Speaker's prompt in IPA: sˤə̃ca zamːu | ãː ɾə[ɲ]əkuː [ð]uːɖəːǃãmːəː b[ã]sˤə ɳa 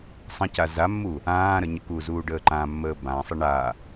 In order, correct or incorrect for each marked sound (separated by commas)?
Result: correct, incorrect, correct